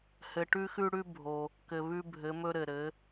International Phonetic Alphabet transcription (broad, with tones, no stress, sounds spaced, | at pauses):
h ɘ˩ ʈ ʉ˧ x ʉ˧ ɽ ʉ˧ bʱ o˩ | k ɘ˩ β ʉ˧ bʱ ɘ˩˧ m ɵ˧ ɾ ɘ˩ ɾ ɘ˩˧